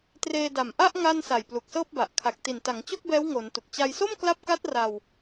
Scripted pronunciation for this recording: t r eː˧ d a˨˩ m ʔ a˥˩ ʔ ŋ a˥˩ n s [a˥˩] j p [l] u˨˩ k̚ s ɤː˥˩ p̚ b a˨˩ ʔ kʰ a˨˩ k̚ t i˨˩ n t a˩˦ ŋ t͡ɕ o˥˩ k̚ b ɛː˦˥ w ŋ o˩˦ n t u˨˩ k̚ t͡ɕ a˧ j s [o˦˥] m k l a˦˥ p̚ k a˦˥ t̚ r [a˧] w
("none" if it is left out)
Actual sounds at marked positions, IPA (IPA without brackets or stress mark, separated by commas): a˨˩, l, o˥˩, a˧